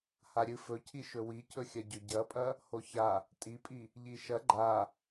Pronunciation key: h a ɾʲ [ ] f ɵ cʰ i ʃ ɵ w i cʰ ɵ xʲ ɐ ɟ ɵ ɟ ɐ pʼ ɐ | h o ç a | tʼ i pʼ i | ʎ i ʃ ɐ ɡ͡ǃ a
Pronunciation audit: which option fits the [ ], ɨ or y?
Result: ɨ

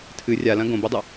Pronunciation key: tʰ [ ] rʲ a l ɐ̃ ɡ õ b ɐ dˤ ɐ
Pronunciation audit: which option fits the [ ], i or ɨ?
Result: ɨ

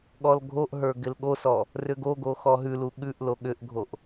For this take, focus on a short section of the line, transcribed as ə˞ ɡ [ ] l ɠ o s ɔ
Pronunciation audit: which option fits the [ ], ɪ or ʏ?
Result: ɪ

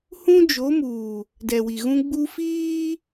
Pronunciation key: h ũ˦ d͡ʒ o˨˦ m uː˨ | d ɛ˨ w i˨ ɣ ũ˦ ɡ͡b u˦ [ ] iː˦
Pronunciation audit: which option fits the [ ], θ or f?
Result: f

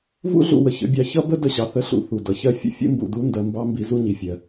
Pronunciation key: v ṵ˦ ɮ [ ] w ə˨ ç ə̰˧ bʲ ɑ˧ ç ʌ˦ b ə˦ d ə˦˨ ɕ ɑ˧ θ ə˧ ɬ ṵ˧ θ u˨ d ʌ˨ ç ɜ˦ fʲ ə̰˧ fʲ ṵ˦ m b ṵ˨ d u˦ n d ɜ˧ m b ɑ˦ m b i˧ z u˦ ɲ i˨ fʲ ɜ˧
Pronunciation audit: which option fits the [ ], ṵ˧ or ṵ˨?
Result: ṵ˧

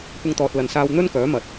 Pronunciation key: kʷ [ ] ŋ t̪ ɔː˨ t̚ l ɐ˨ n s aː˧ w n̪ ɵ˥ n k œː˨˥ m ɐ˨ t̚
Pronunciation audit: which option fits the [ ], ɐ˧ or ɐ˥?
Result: ɐ˧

